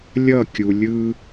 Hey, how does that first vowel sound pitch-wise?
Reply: falling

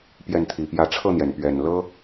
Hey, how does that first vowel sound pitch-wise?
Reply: falling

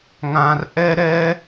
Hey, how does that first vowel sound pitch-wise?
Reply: low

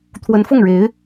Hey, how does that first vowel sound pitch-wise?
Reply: rising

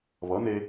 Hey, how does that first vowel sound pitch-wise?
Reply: rising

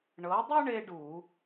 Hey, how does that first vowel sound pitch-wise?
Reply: rising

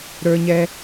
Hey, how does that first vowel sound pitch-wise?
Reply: high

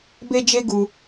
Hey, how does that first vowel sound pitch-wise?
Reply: high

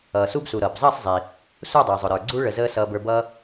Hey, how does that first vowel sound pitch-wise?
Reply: low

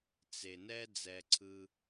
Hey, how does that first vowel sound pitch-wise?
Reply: low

